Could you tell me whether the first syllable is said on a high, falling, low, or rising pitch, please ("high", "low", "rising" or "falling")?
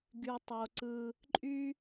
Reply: low